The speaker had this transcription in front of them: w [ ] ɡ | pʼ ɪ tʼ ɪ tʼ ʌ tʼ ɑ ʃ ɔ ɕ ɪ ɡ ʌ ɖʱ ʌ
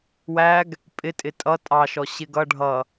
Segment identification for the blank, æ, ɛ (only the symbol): æ